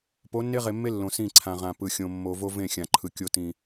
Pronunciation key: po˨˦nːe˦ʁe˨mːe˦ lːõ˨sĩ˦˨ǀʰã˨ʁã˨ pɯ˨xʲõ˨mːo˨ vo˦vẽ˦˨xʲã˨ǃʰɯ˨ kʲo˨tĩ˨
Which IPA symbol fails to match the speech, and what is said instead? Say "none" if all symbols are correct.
none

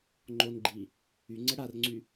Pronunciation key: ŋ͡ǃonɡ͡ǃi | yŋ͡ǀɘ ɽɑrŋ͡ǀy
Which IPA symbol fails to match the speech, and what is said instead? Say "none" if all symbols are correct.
ɑ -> a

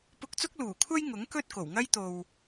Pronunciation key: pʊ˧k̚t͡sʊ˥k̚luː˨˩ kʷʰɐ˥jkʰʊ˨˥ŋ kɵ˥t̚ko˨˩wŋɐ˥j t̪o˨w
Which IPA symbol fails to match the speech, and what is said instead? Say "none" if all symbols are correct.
kʰ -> ŋ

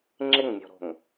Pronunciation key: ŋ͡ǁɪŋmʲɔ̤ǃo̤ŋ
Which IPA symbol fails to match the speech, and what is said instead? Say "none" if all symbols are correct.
ǃ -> ɾ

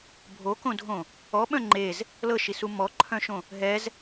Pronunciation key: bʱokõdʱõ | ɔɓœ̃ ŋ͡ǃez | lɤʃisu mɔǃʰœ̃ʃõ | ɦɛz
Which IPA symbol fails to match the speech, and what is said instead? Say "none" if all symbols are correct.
none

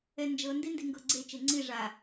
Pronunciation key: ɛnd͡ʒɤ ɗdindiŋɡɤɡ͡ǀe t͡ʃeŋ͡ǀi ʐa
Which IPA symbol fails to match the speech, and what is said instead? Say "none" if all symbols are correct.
ɗ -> n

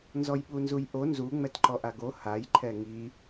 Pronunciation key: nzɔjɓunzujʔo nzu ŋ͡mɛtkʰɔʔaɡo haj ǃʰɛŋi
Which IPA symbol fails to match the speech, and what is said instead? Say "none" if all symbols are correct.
kʰ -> ǃ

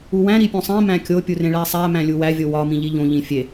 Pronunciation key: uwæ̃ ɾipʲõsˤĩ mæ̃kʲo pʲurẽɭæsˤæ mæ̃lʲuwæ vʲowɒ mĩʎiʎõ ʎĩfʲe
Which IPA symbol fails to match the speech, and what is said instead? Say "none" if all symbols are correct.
none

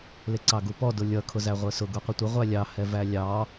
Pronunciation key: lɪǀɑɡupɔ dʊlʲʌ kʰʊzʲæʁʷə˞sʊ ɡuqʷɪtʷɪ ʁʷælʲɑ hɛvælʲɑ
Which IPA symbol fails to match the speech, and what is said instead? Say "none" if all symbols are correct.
zʲ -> z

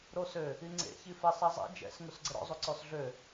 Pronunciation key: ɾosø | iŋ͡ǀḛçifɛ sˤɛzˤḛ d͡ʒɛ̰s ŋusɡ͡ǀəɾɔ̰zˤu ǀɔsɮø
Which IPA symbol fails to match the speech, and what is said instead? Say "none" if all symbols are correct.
none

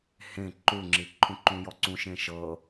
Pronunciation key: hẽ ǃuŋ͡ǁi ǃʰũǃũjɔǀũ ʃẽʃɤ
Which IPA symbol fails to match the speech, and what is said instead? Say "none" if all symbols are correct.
none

